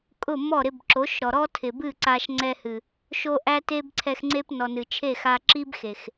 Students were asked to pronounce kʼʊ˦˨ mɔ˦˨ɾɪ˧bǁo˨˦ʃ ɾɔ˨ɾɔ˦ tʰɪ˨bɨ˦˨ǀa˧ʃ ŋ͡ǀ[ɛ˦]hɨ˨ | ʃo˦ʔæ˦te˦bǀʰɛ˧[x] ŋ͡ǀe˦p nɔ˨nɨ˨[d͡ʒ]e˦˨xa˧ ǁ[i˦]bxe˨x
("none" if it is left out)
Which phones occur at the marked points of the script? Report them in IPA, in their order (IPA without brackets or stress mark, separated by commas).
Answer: ɛ˧, x, t͡ʃʰ, i˦